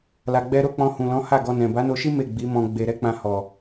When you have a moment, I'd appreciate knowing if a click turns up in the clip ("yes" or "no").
no